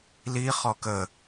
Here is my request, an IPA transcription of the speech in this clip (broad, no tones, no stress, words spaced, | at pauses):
li χɔkə